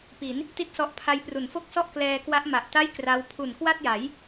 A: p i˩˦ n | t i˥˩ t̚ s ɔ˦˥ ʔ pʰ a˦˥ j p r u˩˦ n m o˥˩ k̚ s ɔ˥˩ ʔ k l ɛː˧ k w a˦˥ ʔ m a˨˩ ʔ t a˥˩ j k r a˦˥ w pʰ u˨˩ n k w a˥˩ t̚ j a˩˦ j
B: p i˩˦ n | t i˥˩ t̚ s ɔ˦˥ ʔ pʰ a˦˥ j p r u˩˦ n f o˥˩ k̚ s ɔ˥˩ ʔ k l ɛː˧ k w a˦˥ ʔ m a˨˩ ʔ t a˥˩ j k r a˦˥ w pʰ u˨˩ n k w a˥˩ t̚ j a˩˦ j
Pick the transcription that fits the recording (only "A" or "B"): B